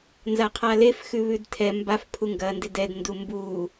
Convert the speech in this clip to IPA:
n z a qʰ a l e f x ʉ β ʉ d tʰ ɛ m b a f pʰ u ŋ ɡ ɐ n d ɪ d ɛ d n d u m b u

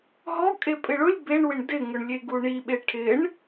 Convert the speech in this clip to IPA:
ɦ ɔ kʼ e pʼ ɪ ɭ ʊ lʲ b e ɳ w ɪ ɳ d ɪ ŋ ʊ ɳ lʲ e ɡ u ɳ i ɓ e ʈʰ ɪ ɳ

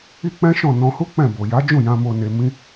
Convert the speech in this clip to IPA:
i˦ k͡p ɛ̃˦ ʃ ɔ̃˦˨ n ɔ̃˧ h u˦ k͡p ɛ̃˦˨ b o˨ j a˨˦ d͡ʒ ũ˦˨ j ã˧ m o˧ n e˧ m ĩ˦

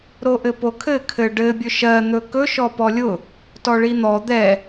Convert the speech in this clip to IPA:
ɾ o ʔ ɘ p o kʰ ɘ kʰ ɘ ɖ ɘ bʲ ɵ ʃ ɜ n̪ ɵ k ɵ ʃ ɔ p ɔ lʲ ʊ | t ɔ ɭ i n̪ ɔ d̪ ɛ

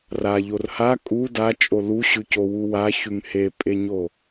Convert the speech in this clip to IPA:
r a ʎ o r h a kʼ u d a t͡ʃʼ o l u ɕ ʉ c o w u w a ç ʉ ŋ h e pʼ e ɲ o

